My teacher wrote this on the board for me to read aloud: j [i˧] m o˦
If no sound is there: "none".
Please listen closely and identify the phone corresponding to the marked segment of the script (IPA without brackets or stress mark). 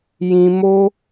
ĩ˧